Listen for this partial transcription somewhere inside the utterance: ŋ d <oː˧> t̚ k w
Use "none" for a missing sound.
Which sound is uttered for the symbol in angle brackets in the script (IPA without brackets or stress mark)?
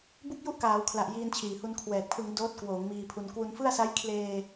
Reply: oː˦˥